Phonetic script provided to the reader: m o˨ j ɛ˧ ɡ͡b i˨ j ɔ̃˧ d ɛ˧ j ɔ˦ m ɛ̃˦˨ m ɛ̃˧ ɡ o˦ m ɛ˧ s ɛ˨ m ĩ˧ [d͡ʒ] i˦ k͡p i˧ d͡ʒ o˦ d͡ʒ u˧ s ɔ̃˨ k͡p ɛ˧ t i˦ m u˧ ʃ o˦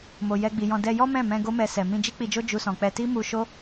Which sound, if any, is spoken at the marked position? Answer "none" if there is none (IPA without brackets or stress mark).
d͡ʒ